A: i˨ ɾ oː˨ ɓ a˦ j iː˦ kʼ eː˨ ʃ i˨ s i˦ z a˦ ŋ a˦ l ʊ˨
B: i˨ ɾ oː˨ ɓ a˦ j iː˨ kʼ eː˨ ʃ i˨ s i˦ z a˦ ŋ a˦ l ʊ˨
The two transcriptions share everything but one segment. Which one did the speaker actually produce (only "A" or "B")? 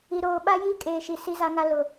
A